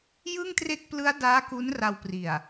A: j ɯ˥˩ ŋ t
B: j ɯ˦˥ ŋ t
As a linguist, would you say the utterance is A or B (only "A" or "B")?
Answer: A